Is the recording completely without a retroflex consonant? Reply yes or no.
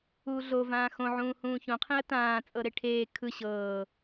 no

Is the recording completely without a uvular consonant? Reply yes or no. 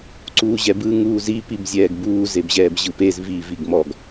yes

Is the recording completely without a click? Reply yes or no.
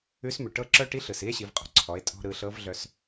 no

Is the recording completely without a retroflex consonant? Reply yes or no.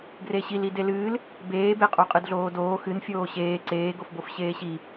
yes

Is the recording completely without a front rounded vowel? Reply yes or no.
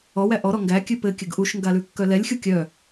no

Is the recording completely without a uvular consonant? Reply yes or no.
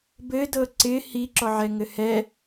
yes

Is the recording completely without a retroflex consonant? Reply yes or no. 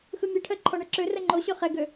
no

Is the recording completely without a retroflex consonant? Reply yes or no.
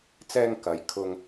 yes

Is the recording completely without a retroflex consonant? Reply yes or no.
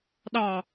yes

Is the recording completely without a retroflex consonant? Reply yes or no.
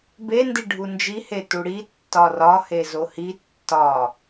no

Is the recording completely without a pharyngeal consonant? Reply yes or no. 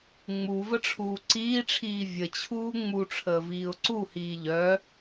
yes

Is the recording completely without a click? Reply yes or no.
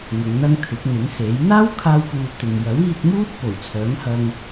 yes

